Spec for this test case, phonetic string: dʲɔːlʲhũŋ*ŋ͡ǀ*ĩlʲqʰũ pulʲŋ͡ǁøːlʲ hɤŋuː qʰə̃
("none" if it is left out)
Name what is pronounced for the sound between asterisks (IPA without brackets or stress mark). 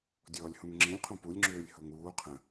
ŋ͡ǁ